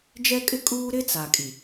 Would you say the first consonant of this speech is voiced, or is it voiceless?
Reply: voiced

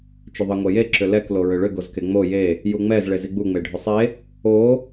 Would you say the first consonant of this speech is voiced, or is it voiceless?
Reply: voiceless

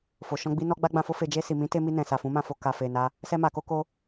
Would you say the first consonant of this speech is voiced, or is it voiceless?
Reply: voiceless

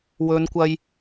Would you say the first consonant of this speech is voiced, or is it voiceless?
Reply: voiced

